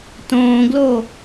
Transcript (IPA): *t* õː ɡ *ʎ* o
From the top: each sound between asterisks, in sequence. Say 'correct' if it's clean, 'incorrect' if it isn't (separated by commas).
correct, incorrect